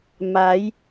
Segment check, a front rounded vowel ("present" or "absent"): absent